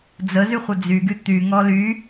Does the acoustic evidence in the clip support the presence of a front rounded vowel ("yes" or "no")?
yes